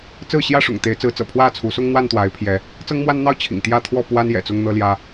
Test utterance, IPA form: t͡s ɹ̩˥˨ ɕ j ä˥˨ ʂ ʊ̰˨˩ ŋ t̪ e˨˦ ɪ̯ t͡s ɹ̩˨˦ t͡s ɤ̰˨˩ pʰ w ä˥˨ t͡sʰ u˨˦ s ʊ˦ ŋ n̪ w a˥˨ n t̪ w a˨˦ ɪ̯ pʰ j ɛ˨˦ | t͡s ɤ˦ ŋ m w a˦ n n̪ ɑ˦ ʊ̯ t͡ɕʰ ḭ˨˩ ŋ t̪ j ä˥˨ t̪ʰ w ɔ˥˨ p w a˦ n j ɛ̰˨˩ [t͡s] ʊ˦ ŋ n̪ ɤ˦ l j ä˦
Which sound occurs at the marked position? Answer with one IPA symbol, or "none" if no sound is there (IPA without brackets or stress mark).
t͡s